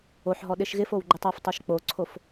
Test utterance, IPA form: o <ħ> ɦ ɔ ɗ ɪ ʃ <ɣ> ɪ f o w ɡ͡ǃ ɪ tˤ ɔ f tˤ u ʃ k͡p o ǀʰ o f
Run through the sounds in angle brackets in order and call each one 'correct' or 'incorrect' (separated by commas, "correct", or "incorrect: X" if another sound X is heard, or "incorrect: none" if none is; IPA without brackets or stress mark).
correct, correct